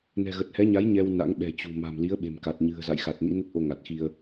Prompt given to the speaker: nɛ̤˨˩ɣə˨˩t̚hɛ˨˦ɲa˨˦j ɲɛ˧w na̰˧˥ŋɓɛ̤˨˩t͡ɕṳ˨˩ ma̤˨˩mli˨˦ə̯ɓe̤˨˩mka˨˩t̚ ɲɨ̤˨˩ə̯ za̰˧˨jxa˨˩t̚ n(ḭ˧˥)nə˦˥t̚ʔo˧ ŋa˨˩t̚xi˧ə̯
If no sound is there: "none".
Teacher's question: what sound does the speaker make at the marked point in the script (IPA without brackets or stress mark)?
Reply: ḭ˧˥